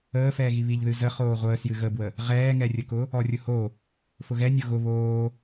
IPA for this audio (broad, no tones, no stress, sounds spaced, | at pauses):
əː f ɛː ɣ i β i ʎ ð ɨ z ə χ oː ʁʷ əː s j ɨ ɣ ə b w ə | ʁ ɛː ŋ ɛ rʲ ə k ʊ | ɔ rʲ ʊ h o | f ʊ ɣ ɛ nʲ o ɣ ʊ β oː